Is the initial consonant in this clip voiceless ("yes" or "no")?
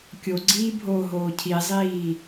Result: yes